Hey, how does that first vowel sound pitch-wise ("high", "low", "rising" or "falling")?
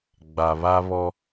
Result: low